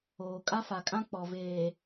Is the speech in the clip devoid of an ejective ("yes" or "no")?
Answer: no